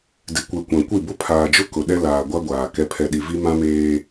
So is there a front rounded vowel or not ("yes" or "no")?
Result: no